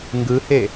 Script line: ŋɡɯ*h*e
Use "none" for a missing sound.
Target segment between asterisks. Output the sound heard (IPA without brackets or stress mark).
h